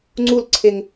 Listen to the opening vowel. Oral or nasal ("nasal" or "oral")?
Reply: oral